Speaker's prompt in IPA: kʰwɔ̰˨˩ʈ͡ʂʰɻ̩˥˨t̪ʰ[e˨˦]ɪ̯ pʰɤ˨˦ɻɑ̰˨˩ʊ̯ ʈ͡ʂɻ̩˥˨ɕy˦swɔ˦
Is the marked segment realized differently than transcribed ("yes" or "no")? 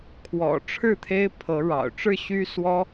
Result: yes